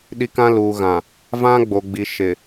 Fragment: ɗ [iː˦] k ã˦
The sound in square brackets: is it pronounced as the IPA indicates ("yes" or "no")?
no